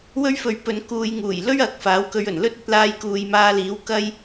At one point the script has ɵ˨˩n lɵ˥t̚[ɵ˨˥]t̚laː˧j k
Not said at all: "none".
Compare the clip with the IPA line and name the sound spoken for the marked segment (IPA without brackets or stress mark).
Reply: ɵ˨˥